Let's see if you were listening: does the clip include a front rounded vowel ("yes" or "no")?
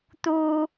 no